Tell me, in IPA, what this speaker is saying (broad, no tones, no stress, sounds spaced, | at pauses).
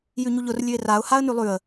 j ʉ ɲ u ʎ ʊ r lʲ ʉ ɪ̯ r a ʊ̯ h a ə̯ n ʉ lˠ ʉ ə̯